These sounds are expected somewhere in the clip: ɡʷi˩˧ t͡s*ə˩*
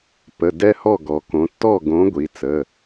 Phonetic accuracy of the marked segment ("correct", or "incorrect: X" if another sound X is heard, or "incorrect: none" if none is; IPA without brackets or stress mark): incorrect: ə˩˧˩